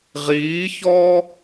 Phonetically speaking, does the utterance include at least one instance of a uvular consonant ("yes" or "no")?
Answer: yes